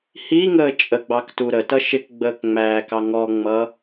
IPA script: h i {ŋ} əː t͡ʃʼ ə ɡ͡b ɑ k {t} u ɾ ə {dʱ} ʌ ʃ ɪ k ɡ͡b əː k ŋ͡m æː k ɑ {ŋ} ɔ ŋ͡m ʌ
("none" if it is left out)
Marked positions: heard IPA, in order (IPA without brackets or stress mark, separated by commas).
ŋ, t, t, ŋ